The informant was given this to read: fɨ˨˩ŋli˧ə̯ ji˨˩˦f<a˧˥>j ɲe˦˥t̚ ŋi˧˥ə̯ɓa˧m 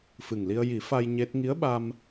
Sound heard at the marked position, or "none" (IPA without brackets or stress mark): a˧